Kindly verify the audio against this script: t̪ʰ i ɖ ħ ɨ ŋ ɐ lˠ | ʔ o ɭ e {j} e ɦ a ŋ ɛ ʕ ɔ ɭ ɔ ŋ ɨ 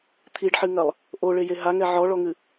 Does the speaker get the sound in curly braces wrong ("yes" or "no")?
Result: no